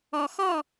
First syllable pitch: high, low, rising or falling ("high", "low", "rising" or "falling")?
low